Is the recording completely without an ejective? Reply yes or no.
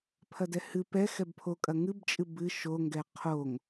no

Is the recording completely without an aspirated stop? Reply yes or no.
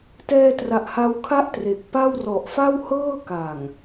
no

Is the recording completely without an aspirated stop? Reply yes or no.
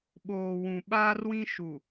yes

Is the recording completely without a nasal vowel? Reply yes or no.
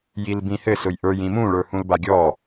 no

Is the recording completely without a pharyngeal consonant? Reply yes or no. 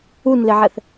no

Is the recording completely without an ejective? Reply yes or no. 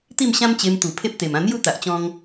yes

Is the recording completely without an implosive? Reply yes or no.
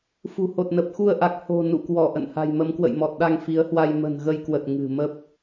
no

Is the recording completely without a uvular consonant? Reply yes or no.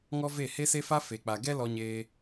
yes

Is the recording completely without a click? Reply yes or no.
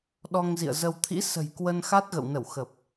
yes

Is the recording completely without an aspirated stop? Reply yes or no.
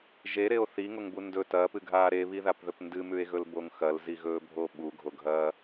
yes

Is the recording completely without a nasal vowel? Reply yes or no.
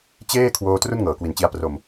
yes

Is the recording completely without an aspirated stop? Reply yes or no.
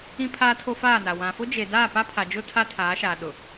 no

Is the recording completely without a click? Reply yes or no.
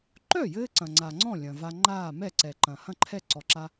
no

